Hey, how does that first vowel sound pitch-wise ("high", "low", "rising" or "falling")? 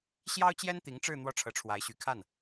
high